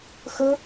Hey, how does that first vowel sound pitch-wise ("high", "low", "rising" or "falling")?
high